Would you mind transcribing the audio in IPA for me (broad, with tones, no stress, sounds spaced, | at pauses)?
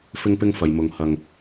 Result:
f ɪ˥ ŋ p ɪ˥ ŋ f ɐ˨ j m ʊ˨ ŋ h ɐ˨ ŋ